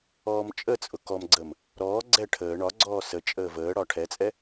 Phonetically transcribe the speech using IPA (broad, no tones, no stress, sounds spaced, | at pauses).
ɔː m t͡ʃʼ ə t͡sʼ ʊ k ɔ m ɡ͡ǀ ə m | ɾ ɔː ɡ͡ǀ ɛ ʈʰ əː ɳ ɒ ɡ͡ǀ ɔː s ə t͡ʃʼ əː v əː ɽ ɒ ʈʰ ɛ t͡sʼ ɛ